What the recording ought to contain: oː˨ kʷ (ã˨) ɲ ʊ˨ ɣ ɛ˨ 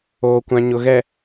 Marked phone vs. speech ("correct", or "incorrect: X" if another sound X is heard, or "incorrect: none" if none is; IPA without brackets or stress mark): correct